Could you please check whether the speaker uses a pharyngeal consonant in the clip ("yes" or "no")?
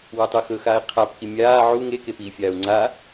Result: yes